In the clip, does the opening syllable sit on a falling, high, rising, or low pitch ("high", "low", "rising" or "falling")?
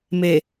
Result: low